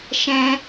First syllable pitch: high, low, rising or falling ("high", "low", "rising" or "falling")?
high